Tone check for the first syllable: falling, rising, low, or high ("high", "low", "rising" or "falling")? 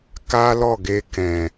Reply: high